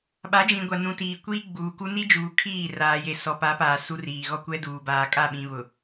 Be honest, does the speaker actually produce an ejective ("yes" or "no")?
yes